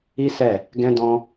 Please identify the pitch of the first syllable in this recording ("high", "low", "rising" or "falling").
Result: high